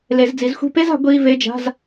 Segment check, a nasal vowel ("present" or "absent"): absent